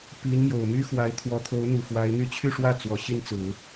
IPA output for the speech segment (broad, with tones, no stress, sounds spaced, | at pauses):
p i˧˥ n m j o˨˩ ʊ̯ m y˥ x w a˧˥ ɪ̯ t̪ʰ w ɔ˧˥ t̪ʰ o˧˥ ʊ̯ n̪ u˨˩ f w a˧˥ ɪ̯ n̪ y˥˧ t͡ɕʰ y˥˧ ʂ w ä˥˩ t͡s w ɔ˨˩ ɕ i˥˩ n t͡s ɹ̩˨˩˦